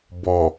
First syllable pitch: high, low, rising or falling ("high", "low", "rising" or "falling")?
low